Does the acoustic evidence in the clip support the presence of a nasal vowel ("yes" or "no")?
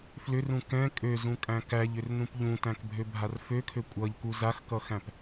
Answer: yes